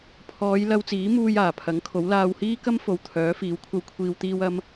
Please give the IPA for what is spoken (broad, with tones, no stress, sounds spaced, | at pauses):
pʰ ɔː˨˧ j l ɐ˧ w t͡s iː˨˥ m uː˧ j aː˨˩ pʰ ɐ˨˥ ŋ kʰ o˨˥ w l aː˧ w h iː˥ k ɐ˥ m f o˨ w t̪ʰ œː˨˥ f iː˨˥ w kʷʰ ɐ˧ w kʷʰ iː˧ w t̪ iː˧ w ɐ˧ m